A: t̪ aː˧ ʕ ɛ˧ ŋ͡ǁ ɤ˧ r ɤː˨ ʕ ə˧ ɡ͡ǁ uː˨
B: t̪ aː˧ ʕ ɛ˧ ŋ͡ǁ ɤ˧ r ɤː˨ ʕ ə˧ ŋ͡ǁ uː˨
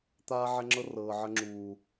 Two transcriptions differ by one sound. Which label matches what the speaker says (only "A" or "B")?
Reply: B